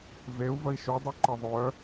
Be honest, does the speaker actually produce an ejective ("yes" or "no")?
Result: no